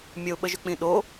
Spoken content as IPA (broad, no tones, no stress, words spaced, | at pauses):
mʲəʊ̯ɓəʒʏk͡pĩ ɗo